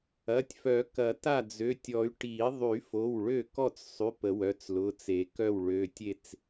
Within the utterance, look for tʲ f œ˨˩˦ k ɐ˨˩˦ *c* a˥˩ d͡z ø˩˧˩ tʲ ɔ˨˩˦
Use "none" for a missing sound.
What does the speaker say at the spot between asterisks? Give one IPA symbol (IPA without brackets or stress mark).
t